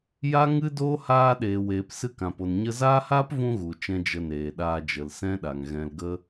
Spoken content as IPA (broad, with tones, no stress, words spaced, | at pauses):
ja˦ŋɨ˦doː˦ haː˧ɗeː˨ weː˨p sɨ˧kã˨po˨n ɲə˧zaː˦haː˦pvũ˧ ɣu˨t͡ʃɛ̃˧ d͡ʒə˧neː˨ɗaː˧d͡ʒə˨l sɛ̃˦ɗa˨ŋɣɛ̃˧lɡə˦